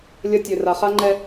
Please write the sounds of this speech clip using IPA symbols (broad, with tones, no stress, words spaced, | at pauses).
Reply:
lʲɐ˦ tʲø˨ra˨χa˦ŋ͡ǃɛ˦